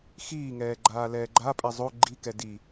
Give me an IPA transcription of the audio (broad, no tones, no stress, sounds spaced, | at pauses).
x iː ŋ ɛː ɡ͡ǃ aː l ɛː ɡ͡ǃ a pʼ ɛ zˤ o ɡ͡ǃ i k ɛ d i